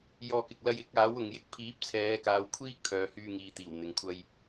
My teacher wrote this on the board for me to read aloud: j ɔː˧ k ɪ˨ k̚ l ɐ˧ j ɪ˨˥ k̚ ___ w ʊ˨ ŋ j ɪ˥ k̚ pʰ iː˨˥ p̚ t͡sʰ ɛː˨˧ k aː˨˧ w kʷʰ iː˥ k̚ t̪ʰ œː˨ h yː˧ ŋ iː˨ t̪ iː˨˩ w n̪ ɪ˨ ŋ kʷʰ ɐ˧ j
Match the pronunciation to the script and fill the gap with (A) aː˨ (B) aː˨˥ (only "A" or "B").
B